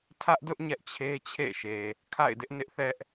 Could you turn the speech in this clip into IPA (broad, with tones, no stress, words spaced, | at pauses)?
tʰä˦ʔdʊ˦ʔ ɲɛ˦ʔt͡ɕʰe˦t͡ɕʰḛ˦˨ʃe˨ | kʰa̰˦˨ɪ̯dɪ˦ʔnɪ˦ʔθɛ˦ʔ